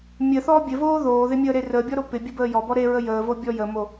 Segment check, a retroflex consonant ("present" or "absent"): absent